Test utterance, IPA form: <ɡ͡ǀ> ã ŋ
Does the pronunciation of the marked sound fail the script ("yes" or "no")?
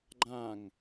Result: yes